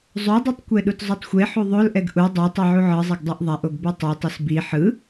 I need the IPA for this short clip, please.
zˤ o dˤ u tˤ kʷ ɛ ɗ u t zˤ o tˤ xʷ e ħ u ðˤ o l ʔ ɛ ɡ ʔ u dˤ ɛ tˤ i ʕ u ʕ ɯ zˤ e ɡ dˤ o ʔ ðˤ a ʔ o ɡ b u tˤ e tˤ ɯ s b i ħ ɯ

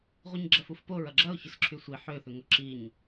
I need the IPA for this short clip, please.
ʁʷ i ɲ ɡ͡ǁ ɐ f u f p o ɹ ɐ ɡ͡ǁ ɐ ʊ̯ ç ʏ s ǁʰ y sʷ i ħ ø θ ʏ ŋ ʊ ǁ i ɲ

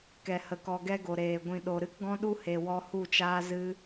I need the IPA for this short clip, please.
k ɛ˨ h ə˨ k ɔ˨ ɡ ɛ˦ ɡ o˨ ɾ eː˨ ɡʷ ĩ˨ ɗ o˨ ɾ ɨ˦ k ɡ ɔ̃˦ ɗ u˦ h e˨ w ɔ˧ h u˦˨ t͡ʃ aː˦ z ɨ˦

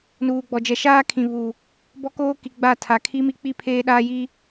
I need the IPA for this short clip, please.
n uː˨ ɡ͡b ɔ˨ d͡ʒ ɛ˨ ʃ aː˦ kʰ ĩ˨ β u˨ | b ɔ˦ k oː˦ k i˨ ɡ͡b a˦˨ tʰ a˨ kʰ i˦ m i˦ k͡p i˦˨ pʰ eː˦ ɗ aː˦ j i˦

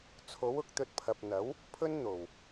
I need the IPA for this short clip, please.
t͡sʰ o˨˥ w ʊ˨˥ k̚ t̪ ɵ˧ t̚ pʰ ɐ˨ p̚ n̪ ɐ˨˥ w | pʰ ɵ˥ n n̪ o˨˩ w

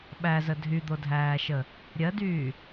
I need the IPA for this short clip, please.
ɓ æ z ə dʱ y d̪ o dʱ æː ʃ ə | ɾʲ ɜ d yː

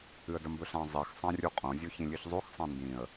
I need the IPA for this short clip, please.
ɨ ə̯ d ɐ m b ɵ ɬ ã zˤ i x sˤ ã rʲ u qʼ õ zʲ o ç ĩ lʲ ɨ ç zˤ o x sˤ ã n d ĩ ə̯

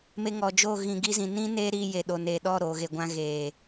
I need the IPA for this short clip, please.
m e˧ ŋ ɔ˨ d͡ʒ o˦˨ ɣ ĩ˨ ɡ i˧ z ĩ˨ n ĩ˦ n eː˦ ɾ iː˧ j e˨ ɗ o˨ n eː˨ ɗ ɔ˦˨ ɾ oː˨ ɣ e˨ ɡʷ ã˧ ɣ eː˨

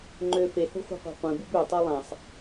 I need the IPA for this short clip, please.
ŋ͡ǃ ø f e h o̤ χʷ e̤ qʷ ɑ̤ qʷ ẽ b u b ø tˤ e lˠ æ̃ sˤ

